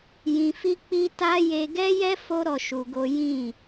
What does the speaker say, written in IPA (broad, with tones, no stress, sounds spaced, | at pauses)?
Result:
j ĩ˧ f i˦ k͡p i˦ t a˦ j e˧ ɡ ɛ˦ j ɛ˦ f o˦ ɾ ɔ˧ ʃ u˧ ɡ o˦ j ĩ˦˨